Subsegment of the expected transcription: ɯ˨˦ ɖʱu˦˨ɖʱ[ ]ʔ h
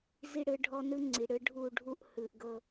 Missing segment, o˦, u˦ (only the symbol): u˦